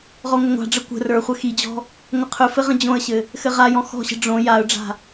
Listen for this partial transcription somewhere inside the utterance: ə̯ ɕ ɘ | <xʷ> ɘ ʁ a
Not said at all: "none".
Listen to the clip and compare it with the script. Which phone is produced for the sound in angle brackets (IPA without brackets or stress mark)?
x